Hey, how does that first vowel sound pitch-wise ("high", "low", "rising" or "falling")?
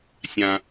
low